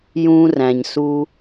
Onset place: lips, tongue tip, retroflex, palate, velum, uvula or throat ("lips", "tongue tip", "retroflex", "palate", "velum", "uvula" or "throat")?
palate